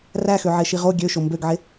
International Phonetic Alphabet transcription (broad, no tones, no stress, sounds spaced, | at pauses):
r æ x ø ʕ e ʃ i ʁ o ɡʲ ø ʃ o m b ø ɡ ʕ e